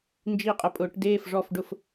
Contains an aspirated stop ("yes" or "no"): no